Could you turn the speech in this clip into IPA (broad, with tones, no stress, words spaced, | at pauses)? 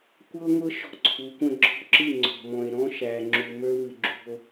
kʷɤ˦ŋʷɤ˦ ʃɔ̤˦ǀʰu˨˦kʷə̃˦ ɡ͡ǁɔ̤˦ǁɨ˦˨ ŋ͡ǀɔ̤˨mɔ̃˨e̯ ɾɔ̃˦ʃæ˨ ŋ͡ǁu˨mə˞˦vɨ˨ ɡ͡ǁṳ˨o̯